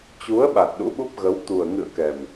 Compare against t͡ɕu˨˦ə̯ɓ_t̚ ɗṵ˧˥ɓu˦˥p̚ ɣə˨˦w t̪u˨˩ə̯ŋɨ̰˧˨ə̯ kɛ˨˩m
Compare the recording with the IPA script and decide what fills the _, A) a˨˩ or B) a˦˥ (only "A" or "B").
A